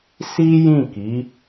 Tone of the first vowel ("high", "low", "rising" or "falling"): high